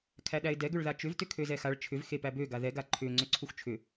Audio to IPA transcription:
kʰæɗæɪ̯dɛ ɡʏɭðat͡ʃʏv tʏkʰøzɛxaɭ t͡ʃʰʏv xepæbø ɡaðɛ ɡaǃʰʏ ŋ͡ǀʏǀʰuxt͡ʃʰʏ

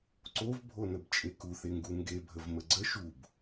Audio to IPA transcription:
ǀovbʱonəb t͡ʃʼekuθeŋɡu ŋɡebʱəv məɡ͡ǀə ʃub

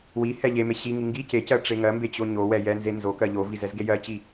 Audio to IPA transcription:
wi hɛ ʎeme ɕiŋi ŋɡi cecɜ ʈ͡ʂeŋɜmbe t͡ɕoɲowɛ jɛnze nzokɜ ʎoviz ɛzɡejɜt͡ɕi

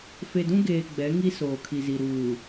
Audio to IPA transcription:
fe˨dũ˦ɡeː˨ ɡ͡bɛ˨˦ŋi˦soː˨ kʰi˨zi˨ ɾuː˨

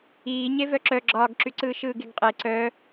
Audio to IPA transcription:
iː ɲevœǁœ ɡ͡ǁɒːɡǁyǀɯː ʃɯːɡeɡqʼe ǀœ

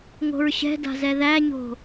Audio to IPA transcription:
ŋo̤ɹɕɛ̤da̤zɛ ðæɲo̤

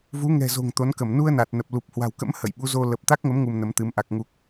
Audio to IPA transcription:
vu˨˦ŋɛ̤˨˩zo̤˨˩ŋ t̪o˨˦nkə˧˩m nu˧ə̯ na˨˩t̚nə˨˩p̚ lu˨˩p̚hwa̤˨˩wkə̰˧˥m hə̰˧˨jɓu˨˦zo˧ lə˨˩p̚t̪a˦˥k̚ŋə˨˦m ŋu˧mnə˨˦mt̪ɨ˨˦m ʔa˨˩k̚ŋu˨˩k̚

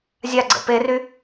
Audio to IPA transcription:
zʲaɡ͡ǀə̰ pery

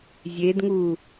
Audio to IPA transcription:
zʲedŋu

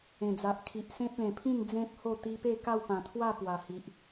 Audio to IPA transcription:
ẽ˨˩d͡za˨ʔkʰi˨ʔ sẽ˦p̚lẽ˨˩pʰĩ˥˧n d͡zẽ˦p̚ho˥˧ t̪i˦ pe˥˧ka˥˧w pã˨˩t̪ʰwa˥˧ pwa˨˩hi˨ʔ

